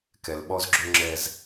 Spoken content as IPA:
kɛ˨lɓɔ˦zɡ͡ǁø˦ŋ͡ǁɛ˦z

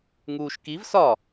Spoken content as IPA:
ŋuːʃkiv sɒ

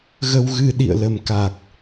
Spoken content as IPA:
ɣə˧wɣɨ˧ ɗḭ˧˨ə̯lə˨˩mka˨˩k̚

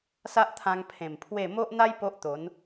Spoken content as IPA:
sa˦ʔt̪ʰã˧ŋ pʰẽ˨˩m pʰwe˥˧ mo˦ʔn̪a˦j po˦ʔt̪o˨˦n

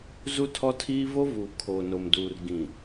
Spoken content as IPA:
zu˦tʰɔ˦tʰiː˦ vo˦vuː˨ kʰoː˨no˨mduː˨r ɡĩ˨

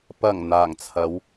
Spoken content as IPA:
pɐ˨˩ŋ n̪aː˨˩ŋt͡sʰɐ˨˧w

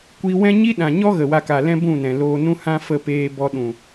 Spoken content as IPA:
kʷi˧wɛ̃˦ ɲi˦ɗã˨ɲɔ˦ ɣə˨wa˧ka˨lɛ̃˦ bũ˦˨nɛ̃˨loː˧nũ˦ hã˦fə˦˨ peː˧bɔ˧ ɗũ˨

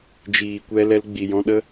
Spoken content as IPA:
d͡ʒiː˨kʷɛ˧lɛ˧l ɡ͡bi˨jɔ̃˧ɗə˦

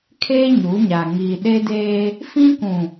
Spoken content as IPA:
kʰeː˦ ɲu˨˦ɲa˨ ŋiː˨ ɗe˦deː˦ | fĩ˦kũ˨

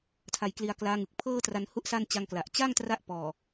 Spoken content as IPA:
tʰa˧jkli˧a̯klaː˦˥ŋɯ˨˩k̚ pʰɤː˥˩tra˧n hu˦˥ʔ sa˥˩n t͡ɕa˧ŋkla˨˩ʔ t͡ɕa˥˩ŋtra˦˥ʔ pɔː˨˩

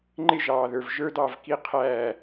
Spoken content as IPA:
ŋ͡ǃɪ˦˨ʒɑː˨ðə˞˨v ʒə˞˦dɑ˦˨vki˦ qʰæː˦˨

